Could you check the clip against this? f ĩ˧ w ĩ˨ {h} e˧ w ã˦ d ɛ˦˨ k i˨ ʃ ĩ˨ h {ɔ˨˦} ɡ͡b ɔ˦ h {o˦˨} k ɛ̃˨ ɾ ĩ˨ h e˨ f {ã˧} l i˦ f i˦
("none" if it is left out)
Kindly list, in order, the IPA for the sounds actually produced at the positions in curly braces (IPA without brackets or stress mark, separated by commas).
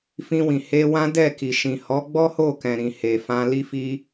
h, ɔ˨˦, o˦˨, ã˧